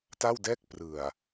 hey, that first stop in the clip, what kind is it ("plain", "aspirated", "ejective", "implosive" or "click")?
plain